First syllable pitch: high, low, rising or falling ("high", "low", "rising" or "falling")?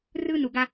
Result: high